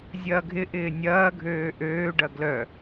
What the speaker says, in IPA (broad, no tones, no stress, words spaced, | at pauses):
zʲɐːɡʱɪʔɪː nʲɐːɡʱøː ʔøːɖɐ ɡlœ